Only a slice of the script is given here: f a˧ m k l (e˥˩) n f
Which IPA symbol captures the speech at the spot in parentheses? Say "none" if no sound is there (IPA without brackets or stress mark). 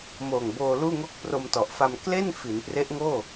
e˥˩